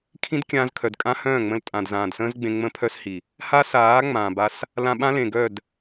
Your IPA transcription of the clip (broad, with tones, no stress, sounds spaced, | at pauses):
kʰ ĩ˦ d kʲ ãː˧ z kʰ œ˨ d kʼ ã˦ h œ̃ː˦˨ ŋ͡m ə̃˧ l tʼ ã˨ d z ãː˨ d s ə̃ː˦ z ɡ͡b ẽ˧ ŋ͡m ə̃˦ pʰ œ˦ s h i˨ | h a˦ s aː˨˦ ŋ͡m ãː˨ b a˧ s | l ã˧ ɓ ã˦ l ẽ˨ ɡ œ˦˨ d